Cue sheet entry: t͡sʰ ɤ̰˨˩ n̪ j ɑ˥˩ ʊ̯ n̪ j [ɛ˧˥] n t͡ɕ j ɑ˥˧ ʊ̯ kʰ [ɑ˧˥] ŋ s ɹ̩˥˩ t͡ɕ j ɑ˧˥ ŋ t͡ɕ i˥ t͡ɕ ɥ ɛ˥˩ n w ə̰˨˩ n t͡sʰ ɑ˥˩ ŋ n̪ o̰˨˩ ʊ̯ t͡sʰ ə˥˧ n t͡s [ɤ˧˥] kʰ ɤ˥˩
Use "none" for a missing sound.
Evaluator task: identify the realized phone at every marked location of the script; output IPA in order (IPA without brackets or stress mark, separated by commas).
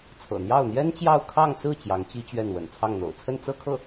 ɛ˥, ɑ˥˧, ɤ˥˧